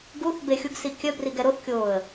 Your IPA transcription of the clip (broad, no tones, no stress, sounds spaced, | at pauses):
ɡ u θ b e xʲ u ɡ s i kʲ œ b r i ɡ ɛ ɾ o θ kʲ oː ə̯